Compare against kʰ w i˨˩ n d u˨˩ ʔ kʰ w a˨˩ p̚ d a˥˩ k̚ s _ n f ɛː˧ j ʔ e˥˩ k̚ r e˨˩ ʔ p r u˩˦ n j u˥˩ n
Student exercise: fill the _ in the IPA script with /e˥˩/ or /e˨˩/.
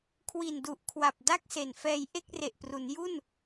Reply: e˨˩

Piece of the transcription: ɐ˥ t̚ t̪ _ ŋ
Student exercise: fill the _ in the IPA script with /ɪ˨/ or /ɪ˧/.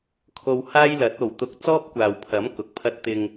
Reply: ɪ˧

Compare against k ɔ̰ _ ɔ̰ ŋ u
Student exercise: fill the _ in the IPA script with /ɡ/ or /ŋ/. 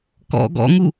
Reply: ɡ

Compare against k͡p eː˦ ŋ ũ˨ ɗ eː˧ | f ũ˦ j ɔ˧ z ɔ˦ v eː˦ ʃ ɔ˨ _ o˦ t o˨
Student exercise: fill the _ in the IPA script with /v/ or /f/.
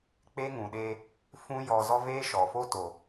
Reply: f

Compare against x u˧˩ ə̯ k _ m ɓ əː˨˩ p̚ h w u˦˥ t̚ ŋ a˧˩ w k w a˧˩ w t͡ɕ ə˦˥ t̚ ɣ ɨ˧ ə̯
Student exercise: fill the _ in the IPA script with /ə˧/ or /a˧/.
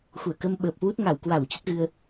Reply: ə˧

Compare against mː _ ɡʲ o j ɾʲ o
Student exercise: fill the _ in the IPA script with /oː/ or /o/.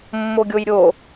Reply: o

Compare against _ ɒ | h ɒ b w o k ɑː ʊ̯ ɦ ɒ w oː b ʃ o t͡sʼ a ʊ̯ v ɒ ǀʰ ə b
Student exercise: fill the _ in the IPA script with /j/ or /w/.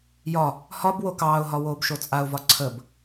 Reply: j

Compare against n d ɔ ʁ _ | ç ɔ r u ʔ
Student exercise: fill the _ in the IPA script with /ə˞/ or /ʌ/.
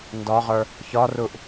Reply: ə˞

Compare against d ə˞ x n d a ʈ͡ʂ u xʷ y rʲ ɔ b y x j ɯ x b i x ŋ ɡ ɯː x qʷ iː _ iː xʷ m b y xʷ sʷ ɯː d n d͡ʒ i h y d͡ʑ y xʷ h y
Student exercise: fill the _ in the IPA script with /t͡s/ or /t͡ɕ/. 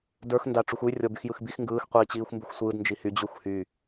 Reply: t͡ɕ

